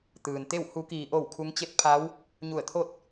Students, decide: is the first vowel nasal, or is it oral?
oral